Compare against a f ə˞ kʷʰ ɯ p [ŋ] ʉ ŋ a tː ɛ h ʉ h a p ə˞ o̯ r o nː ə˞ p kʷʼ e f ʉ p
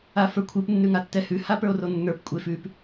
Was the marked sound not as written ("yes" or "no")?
yes